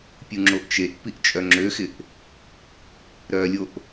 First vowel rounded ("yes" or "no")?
yes